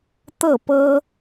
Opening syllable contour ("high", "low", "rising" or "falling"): falling